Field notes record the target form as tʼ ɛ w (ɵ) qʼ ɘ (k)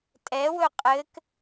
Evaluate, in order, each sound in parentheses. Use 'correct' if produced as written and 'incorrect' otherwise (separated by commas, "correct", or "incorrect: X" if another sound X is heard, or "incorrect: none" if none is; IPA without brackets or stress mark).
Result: correct, correct